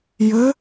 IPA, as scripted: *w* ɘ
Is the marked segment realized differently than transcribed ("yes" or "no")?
yes